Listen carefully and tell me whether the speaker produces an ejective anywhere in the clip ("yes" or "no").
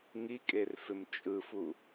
yes